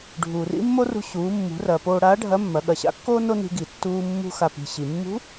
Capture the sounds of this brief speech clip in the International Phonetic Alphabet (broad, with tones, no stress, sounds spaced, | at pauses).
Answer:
ɖʱ uː˩ r ḭ˥ mː o˥ r ṳ˧ ɕ uː˩˧ mː ṳ˩˧ r ɐː˩ p oː˧ ɽ aː˧˥ ɖʱ ɐ˧˥ mː ɐ˩˧ ɠ ɐ˩ ɕ a̰˧˥ kː oː˥ n o˥ n i̤˧ ɡ i˩ tː uː˧ mː ṳ˧ x a˩ p i̤˩ ɕ i˩ mː ṳ˧˥